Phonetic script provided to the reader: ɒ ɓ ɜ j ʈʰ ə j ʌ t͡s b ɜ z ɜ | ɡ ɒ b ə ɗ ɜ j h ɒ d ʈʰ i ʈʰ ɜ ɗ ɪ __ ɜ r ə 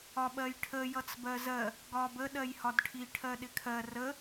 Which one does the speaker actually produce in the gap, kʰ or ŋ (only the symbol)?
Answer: kʰ